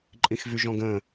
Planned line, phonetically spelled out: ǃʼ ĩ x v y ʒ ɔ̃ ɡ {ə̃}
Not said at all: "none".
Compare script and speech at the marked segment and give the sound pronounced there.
ə̃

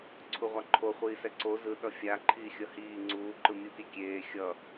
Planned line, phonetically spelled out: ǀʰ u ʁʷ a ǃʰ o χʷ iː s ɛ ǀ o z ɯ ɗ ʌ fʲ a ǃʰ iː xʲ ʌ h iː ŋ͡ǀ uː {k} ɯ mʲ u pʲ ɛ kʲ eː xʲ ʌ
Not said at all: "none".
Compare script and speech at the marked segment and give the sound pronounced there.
ǃ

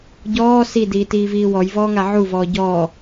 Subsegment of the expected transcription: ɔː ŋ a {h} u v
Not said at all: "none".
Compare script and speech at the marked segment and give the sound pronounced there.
ʕ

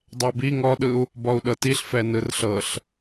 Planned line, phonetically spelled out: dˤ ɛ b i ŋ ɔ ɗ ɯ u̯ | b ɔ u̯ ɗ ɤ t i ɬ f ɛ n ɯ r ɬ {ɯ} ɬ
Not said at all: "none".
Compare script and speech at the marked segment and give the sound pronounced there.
ɤ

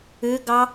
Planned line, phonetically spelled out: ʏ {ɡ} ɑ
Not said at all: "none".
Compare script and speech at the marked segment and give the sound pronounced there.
ɡ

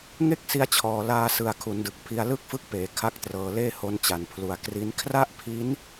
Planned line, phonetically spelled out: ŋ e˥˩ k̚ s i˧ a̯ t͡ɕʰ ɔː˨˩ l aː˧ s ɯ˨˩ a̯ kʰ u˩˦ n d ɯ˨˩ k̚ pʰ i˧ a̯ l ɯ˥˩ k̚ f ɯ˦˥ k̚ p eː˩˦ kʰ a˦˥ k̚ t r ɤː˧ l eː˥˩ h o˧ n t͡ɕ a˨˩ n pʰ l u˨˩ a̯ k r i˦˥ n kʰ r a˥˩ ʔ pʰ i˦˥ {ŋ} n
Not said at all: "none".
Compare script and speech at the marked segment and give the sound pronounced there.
none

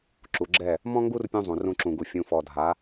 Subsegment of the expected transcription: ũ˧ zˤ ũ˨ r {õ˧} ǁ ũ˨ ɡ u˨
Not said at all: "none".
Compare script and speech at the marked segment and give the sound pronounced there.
ũ˧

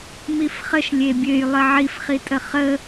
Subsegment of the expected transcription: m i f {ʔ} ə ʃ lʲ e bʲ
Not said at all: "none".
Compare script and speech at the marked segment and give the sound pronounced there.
χ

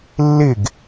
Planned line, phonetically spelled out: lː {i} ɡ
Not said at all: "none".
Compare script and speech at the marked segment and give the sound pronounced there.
ɪ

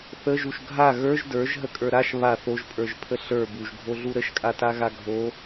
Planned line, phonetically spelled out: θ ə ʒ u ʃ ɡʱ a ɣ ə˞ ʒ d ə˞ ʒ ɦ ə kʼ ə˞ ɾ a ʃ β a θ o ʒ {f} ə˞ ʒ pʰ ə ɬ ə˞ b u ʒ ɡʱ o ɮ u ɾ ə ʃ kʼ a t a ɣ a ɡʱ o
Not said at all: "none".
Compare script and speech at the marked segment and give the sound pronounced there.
pʼ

